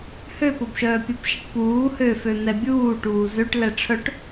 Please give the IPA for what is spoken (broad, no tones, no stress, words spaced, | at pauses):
høpobʃœː pʲobʃiʈpuː høfø n̪ɛbʲuː ʈuːzøʈ lɛʈ͡ʂʰœʈ